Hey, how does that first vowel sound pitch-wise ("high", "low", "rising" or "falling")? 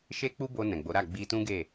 high